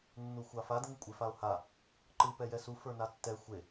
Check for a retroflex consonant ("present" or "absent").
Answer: absent